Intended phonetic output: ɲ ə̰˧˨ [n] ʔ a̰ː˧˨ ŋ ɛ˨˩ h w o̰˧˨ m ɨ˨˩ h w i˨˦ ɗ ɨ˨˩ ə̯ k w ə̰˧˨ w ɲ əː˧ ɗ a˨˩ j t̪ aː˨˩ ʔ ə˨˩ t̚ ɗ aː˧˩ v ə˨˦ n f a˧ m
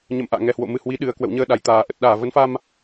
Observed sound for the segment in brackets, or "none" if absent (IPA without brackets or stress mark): m